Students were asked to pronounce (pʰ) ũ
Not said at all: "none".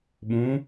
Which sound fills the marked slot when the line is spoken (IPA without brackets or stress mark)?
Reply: ɓ